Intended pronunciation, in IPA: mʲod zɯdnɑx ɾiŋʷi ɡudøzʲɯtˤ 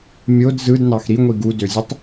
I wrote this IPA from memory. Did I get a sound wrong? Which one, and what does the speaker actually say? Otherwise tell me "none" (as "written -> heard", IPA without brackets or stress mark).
none